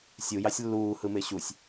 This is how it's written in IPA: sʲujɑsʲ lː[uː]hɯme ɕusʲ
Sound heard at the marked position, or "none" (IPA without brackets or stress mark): uː